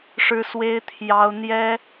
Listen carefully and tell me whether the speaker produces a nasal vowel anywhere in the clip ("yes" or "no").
no